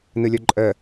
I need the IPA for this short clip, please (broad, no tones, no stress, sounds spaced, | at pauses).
n ɯ lʲ o ǃʼ ə